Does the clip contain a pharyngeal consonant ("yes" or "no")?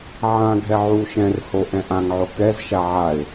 yes